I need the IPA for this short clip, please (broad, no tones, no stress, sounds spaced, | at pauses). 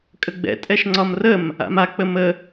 kʼ ə ɡ͡b ɛ̰ tʼ ɛ ʃ ŋ͡ǀ ɒ m r ə m | a̰ m a k͡p ə m ə